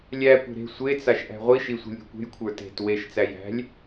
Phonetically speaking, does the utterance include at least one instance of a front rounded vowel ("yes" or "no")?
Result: no